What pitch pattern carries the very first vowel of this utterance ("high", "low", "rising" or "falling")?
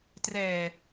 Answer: low